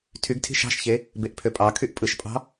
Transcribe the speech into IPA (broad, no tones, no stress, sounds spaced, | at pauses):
tʰ y ɡ tʰ i̤ ʃ ɑ̤ ʃ ç e | b e ʔ pʰ ø pʼ ɑ kʰ y ʔ pʼ ɯ ʃ pʼ ɑ̤